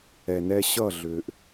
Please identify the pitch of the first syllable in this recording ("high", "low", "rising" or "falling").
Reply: low